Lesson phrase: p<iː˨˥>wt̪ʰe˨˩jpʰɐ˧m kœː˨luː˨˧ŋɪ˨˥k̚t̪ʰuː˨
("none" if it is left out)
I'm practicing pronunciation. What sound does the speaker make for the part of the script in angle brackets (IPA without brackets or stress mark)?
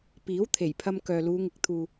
iː˨˥